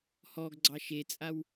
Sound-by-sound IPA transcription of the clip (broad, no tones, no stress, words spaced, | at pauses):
hɔɡ ɡ͡ǀɑʃet͡sʼaw